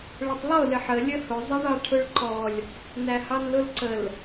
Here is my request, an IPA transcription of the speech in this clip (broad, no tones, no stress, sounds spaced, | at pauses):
ɭ ə tˤ lˠ ʊ l ɪ ħ ə lʲ ə h ʊ zˤ ʌ ɳ ɑ ʈʰ ʊ ɭ ǃ ɔ lʲ | n æ h ɑ n l ʊ l ǀ ə l